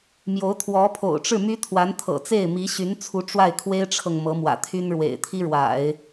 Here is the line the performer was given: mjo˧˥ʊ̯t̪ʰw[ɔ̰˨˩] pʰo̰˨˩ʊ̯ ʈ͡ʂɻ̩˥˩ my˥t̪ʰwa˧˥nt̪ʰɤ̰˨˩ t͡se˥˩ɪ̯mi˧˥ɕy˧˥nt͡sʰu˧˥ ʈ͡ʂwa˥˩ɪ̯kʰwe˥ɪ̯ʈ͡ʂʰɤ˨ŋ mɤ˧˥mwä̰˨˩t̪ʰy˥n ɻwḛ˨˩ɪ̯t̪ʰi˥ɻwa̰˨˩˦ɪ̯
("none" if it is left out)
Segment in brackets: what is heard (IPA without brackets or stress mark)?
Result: ɔ˧˥